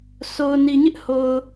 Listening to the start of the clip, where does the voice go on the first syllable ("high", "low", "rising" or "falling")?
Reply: low